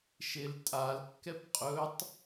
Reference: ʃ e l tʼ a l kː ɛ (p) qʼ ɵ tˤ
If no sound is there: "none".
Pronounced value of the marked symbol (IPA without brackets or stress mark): p